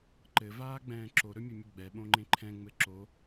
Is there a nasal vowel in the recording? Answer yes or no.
yes